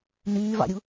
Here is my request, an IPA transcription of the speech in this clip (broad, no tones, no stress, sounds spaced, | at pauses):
n yː v ɑ̰ ɾʲ u